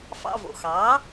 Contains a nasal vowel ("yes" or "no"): no